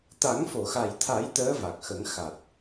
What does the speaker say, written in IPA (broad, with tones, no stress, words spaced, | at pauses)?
t̪a˨˩˦ŋfo˨˩˨xa˨˩jt̪ʰa˨˩˦j t̪əː˧˥va˨˩k̚xə˨˩˦ŋ xa˨˩t̚